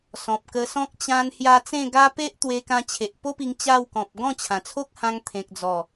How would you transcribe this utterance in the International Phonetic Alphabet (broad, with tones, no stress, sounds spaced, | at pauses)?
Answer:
s ɔ̃˨ p̚ k ə˧ s ɔ̃˦ k̚ t͡ɕ ã˧ n h j a˧ t͡s ẽ˥˧ ɡ a˦ p e˦ ʔ t̪ w e˧ k ã˧ t͡ɕʰ e˨ ʔ p o˦ p i˧ ŋ t͡ɕ a˥˧ w k ɔ̃˨ p̚ ɡ ɔ̃˥˧ t͡ɕʰ ã˨˩ t͡sʰ o˦ k̚ h ã˧ ŋ t̪ʰ ẽ˨ k̚ d͡z ɔ˨˩